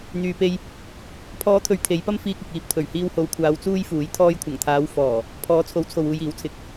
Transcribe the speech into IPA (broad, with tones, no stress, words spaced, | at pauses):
n̪yː˨pe˧j | pʰɔː˨˧t̪ʰɵ˨ɥ t̪ʰe˨˧jpɐ˥mfiː˧k̚ ɪ˨k̚ iː˧p̚ t̪ʰɵ˨˩ɥhiː˧who˨˧wkʷʰaː˨˧w t͡suː˥jfuː˨˥j t̪ʰɔː˧jkʷʰɐ˨˩ŋt̪ʰaː˨˧w fɔː˨˩ | pʰɔː˨˥t͡sʰo˨˥wt͡sʰo˨wuː˨j iː˨˥wt͡sʰɪ˨k̚